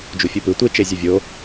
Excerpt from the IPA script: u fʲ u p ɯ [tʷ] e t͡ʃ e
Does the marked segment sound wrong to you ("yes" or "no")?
no